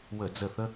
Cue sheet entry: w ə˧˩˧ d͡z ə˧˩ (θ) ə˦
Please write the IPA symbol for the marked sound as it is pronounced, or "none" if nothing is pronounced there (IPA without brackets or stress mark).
θ